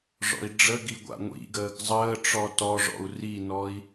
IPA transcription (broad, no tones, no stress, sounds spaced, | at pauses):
ʐ ɔ̰ i̯ ɖ͡ʐ ə ɡ i ɡʷ a̰ ŋʷ ḭ ɡ əː ɡ zˤ əː ʈ͡ʂ ɔ t ɔ ʐ ɔ̰ u̯ r i n ɔ i̯